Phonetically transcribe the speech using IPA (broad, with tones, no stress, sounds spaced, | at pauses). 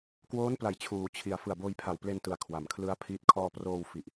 k w oː˦˥ n p l a˩˦ j t͡ɕʰ uː˩˦ t͡ɕʰ i˨˩ a̯ f ɯ˨˩ a̯ b oː˧ j pʰ a˨˩ w p l e˧ n t ɯ˨˩ a̯ kʰ w a˩˦ m kʰ l ɯ˦˥ a̯ pʰ iː˦˥ t̚ kʰ ɔː˧ p r oː˧ w f i˨˩ ʔ